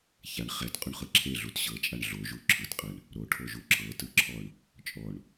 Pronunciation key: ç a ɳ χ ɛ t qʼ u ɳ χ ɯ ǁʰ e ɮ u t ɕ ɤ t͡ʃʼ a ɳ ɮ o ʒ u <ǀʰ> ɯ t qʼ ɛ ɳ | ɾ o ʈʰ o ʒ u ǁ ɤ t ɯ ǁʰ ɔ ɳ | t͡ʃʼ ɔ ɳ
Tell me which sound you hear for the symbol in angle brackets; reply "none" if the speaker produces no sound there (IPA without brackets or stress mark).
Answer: ǁʰ